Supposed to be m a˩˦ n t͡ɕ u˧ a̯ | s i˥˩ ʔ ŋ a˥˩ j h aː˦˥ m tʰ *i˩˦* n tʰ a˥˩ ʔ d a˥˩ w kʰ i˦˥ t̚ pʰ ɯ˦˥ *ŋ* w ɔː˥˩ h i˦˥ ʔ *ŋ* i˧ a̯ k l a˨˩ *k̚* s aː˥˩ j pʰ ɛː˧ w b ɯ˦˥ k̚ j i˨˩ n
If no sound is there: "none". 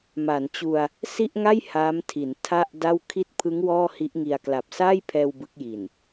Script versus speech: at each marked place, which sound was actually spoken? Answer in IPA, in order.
i˩˦, ŋ, ŋ, p̚

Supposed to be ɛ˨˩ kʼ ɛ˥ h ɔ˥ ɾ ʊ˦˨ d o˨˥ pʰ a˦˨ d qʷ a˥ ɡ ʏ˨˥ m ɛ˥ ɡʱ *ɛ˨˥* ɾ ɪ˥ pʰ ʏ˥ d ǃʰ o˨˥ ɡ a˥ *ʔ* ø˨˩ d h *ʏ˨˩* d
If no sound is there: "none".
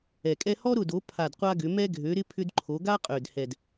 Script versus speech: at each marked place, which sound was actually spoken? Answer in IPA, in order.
ø˨˥, qʼ, ɛ˨˩

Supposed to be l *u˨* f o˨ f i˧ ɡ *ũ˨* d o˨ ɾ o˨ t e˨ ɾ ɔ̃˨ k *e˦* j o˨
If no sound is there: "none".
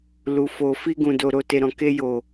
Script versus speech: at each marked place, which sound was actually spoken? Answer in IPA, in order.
u˨, ũ˨, e˧

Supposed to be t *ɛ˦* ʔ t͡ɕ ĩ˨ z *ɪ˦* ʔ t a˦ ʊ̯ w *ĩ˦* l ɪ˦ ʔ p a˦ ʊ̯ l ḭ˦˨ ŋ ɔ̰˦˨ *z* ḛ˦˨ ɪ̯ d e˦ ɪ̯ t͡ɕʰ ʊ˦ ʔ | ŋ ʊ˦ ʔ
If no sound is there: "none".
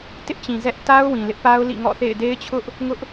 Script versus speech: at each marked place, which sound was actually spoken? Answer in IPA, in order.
ɪ˦, ɛ˦, ĩ˨, θ

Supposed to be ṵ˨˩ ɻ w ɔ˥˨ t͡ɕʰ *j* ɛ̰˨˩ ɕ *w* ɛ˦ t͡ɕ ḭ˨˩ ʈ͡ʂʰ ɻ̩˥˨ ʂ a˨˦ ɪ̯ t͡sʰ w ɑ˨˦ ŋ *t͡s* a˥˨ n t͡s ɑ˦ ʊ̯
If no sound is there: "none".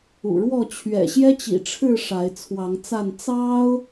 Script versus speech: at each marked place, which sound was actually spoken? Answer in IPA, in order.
ɥ, j, t͡s

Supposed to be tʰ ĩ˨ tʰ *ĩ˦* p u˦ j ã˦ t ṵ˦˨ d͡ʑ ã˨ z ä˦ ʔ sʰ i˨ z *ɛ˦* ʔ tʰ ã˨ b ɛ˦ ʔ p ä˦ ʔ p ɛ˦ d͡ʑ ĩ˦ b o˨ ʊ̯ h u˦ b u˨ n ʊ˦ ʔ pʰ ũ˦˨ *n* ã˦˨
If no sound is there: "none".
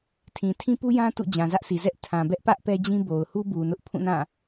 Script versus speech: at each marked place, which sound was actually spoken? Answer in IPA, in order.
ĩ˦, ɛ˦, n

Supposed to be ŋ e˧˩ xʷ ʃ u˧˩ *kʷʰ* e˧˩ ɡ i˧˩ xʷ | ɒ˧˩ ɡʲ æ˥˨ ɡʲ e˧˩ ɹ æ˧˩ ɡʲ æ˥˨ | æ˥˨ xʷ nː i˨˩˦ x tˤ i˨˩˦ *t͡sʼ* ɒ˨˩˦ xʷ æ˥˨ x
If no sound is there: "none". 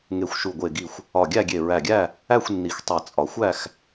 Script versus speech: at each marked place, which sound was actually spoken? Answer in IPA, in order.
ɡʷ, t͡sʼ

